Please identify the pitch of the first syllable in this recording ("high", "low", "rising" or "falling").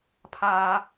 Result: high